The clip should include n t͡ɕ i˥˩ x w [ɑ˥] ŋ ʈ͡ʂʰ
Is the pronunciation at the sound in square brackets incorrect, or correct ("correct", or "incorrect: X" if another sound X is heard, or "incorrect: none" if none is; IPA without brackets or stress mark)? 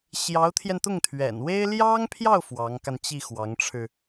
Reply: incorrect: ɑ˧˥